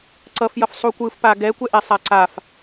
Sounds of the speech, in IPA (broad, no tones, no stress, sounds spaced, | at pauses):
ǀ ʌ f j ʌ f sˤ u kʷ ɯ f p a ɡ ɛ kʷ ɛ ʔ ɛ sˤ a ǀ a f